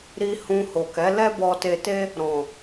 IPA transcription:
ɾ i˧ h ũ˧ h o˨ k ɛ˨˦ l ɛ˦ b ɔ˧ t e˧ t e˦ | ɾ ɔ̃˨

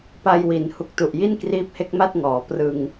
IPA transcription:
p a˧ j w i˩˦ n h u˨˩ k̚ t u˨˩ ʔ j i˥˩ n k r iː˦˥ p̚ h e˦˥ k̚ m a˥˩ t̚ ŋ ɔː˩˦ p r ɯ˧ ŋ

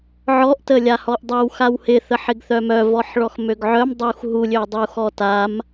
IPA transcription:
ʕ ɔ ʔ t ə lʲ a h ɔ ʔ dˤ ə w x a w h ɪ θ ə ħ ɪ ɡ θ œ m œ v ɔ ħ ɭ ɔ x m ø ɡ ʕ œ m dˤ u x ɦ u lʲ ø dˤ u x ɔ t a m

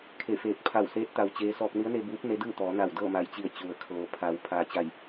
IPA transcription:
kʰ e˧˩ f eː˧˩ k̚ pʰ a˧˩ w s eː˧˥ t̚ t̪ a˧ w t͡ɕ eː˧˥ s ɔː˧ k̚ n i˧˥ ə̯ n e˧ b uː˧˥ p̚ n e˧˥ d ɯː˥˨ t̪ ɔː˩˧ n a˧˩ w d ɤː˥˨ m a˧˩ j t͡ɕ i˧˩ ə̯ t͡ɕ u˩ ə̯ kʰ ɤː˩ pʰ a˩˧ w pʰ aː˩˧ t͡ɕ a˧˩ j

